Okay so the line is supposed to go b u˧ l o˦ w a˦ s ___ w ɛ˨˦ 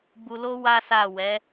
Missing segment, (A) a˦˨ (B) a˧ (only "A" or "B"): A